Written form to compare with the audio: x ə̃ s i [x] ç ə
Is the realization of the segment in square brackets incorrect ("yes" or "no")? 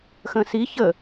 yes